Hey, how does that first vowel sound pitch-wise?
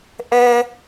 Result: high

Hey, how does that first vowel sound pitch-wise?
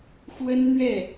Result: high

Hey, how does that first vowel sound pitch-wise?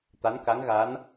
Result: rising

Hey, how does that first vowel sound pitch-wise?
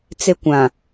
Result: high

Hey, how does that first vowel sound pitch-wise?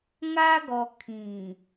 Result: high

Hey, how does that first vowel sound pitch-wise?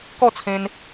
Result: falling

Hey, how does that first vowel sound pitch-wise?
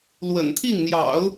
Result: low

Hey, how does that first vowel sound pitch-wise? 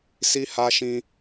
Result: high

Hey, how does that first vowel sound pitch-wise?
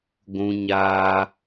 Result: high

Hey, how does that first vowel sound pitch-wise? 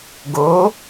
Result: rising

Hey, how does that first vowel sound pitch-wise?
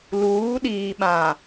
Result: rising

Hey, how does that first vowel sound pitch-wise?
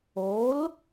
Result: rising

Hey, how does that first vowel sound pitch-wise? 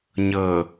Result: low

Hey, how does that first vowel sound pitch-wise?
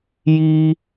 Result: high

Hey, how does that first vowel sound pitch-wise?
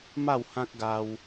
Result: falling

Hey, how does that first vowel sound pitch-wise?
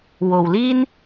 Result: low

